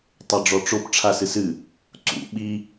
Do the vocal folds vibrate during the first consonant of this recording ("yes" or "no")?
no